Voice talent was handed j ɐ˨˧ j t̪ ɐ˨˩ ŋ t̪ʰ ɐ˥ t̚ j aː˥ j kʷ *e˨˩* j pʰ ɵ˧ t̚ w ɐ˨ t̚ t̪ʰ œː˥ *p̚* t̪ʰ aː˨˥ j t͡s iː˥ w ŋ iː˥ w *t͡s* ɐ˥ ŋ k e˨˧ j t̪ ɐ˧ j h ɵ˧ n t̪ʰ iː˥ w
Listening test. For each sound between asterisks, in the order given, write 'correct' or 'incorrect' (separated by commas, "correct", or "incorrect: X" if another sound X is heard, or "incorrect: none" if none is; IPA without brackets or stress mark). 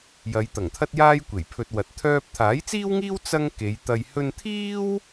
correct, correct, correct